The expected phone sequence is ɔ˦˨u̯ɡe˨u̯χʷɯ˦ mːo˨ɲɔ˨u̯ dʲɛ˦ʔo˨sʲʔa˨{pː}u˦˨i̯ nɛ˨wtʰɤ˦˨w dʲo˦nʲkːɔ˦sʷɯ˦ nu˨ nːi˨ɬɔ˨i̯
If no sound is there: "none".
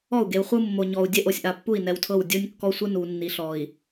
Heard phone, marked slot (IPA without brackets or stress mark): pː